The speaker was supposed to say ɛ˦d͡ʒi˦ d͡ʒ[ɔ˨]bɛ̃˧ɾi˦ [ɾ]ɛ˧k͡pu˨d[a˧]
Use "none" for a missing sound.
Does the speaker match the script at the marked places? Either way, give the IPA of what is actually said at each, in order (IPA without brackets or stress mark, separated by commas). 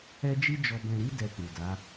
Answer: ɔ˧, d, a˨˦